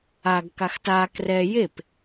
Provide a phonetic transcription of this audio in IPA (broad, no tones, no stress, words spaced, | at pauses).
aɡ kaxta krɛ jep